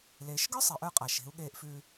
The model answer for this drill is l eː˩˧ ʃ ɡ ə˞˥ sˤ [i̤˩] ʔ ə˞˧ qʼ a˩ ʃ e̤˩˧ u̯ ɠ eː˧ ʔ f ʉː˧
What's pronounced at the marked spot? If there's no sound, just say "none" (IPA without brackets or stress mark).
i˩